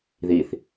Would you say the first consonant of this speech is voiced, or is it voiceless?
voiced